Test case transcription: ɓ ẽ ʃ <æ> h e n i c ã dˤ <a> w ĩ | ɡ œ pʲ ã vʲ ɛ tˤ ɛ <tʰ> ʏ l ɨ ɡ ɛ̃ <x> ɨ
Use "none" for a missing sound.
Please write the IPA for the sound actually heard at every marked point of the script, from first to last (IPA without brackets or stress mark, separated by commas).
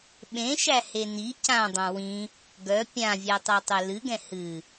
æ, ã, tˤ, h